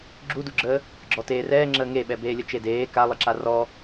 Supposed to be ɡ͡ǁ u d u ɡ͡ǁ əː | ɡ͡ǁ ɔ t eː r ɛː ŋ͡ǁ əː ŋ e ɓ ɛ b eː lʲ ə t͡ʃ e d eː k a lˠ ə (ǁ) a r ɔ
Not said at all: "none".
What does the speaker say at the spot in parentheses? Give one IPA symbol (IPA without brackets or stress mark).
ǁ